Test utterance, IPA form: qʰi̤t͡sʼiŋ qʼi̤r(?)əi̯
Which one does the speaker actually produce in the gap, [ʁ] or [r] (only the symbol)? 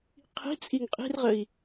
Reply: ʁ